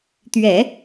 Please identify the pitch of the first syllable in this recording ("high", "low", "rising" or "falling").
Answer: low